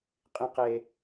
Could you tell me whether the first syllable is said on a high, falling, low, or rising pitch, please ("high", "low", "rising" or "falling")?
low